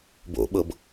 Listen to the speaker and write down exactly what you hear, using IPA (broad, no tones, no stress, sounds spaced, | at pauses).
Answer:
b o̰ ɓ ɤ b